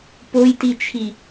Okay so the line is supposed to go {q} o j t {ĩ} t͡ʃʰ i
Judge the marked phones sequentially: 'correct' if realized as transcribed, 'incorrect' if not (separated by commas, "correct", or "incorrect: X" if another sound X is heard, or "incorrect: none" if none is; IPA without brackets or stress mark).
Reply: incorrect: p, incorrect: i